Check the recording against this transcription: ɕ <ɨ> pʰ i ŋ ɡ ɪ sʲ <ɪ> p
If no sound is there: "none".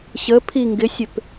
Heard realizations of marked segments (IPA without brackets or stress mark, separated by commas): ə, ɪ